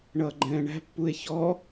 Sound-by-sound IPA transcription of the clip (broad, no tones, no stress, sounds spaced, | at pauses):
ɳ ʌː ɡ͡ǃ ɛ̃ː ɳ æ̤ pː u e̯ ç ɔ